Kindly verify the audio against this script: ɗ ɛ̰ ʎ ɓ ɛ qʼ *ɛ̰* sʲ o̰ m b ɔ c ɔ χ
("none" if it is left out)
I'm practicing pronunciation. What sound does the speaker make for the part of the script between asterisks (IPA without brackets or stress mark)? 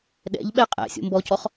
æ̰